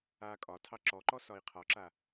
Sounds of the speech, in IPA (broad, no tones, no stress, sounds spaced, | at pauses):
a kʼ ɒ tʰ ɑ ǁ ɔ ǃ ɔ s ɒ i̯ qʰ ɒ ǁ a